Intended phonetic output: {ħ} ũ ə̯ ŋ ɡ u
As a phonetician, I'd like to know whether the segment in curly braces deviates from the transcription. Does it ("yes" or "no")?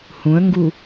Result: yes